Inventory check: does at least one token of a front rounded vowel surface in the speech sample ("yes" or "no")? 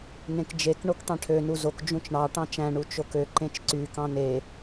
yes